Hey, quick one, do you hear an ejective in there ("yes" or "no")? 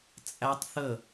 yes